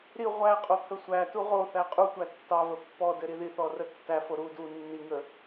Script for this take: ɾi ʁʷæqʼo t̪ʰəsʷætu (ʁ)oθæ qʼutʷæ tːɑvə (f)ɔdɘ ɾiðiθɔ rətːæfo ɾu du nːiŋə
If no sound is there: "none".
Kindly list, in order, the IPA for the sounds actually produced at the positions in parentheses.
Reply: ʁ, pː

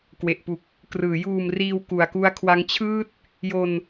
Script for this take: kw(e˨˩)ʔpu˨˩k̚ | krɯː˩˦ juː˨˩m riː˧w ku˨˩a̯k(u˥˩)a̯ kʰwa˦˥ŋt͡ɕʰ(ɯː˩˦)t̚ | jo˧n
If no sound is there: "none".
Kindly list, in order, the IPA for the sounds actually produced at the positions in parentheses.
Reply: e˨˩, u˦˥, ɯː˥˩

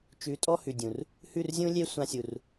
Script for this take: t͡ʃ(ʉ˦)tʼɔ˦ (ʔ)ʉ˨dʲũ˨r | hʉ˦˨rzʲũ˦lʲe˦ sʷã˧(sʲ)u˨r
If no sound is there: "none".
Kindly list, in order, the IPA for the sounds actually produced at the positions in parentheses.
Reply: ʉ˨˦, h, sʲ

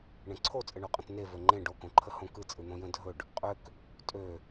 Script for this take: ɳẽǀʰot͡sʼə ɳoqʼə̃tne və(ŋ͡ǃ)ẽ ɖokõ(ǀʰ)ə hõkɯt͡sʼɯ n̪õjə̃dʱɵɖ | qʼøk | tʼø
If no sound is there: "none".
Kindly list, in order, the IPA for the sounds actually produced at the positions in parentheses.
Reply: ŋ͡ǃ, ǃʰ

